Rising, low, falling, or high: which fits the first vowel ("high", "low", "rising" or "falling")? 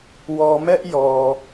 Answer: low